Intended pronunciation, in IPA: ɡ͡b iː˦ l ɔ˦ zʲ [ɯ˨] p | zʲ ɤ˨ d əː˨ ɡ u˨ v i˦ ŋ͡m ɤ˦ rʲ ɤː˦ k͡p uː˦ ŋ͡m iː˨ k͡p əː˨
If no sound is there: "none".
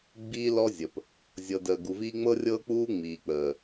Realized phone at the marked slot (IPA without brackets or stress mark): ə˨